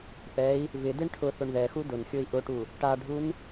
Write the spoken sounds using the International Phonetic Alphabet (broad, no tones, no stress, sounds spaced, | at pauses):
p ɛ i̯ | v ɪ d e ɳ ʈʰ ʊ θ ʊ ɳ ð ɛ x u d ʊ n xʲ o i̯ ʔ ʊ ʈ u | ʈ a ɖʱ u n